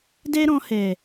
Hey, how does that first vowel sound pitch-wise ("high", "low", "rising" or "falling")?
high